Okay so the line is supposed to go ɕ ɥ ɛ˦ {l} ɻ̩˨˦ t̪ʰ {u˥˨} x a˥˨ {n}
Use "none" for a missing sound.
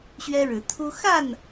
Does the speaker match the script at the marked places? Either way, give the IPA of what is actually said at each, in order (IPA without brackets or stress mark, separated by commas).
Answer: ɻ, u˦, n